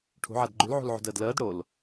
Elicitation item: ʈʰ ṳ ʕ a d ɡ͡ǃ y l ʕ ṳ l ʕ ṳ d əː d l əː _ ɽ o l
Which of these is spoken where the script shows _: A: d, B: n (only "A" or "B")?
A